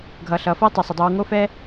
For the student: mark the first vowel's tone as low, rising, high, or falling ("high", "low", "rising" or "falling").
low